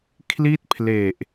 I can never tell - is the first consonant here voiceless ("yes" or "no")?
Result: yes